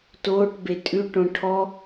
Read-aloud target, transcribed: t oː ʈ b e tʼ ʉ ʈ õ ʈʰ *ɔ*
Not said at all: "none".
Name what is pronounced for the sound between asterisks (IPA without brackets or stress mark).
ɔ